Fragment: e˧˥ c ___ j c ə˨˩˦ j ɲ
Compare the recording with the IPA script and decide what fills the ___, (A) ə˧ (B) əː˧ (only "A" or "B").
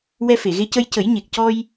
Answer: A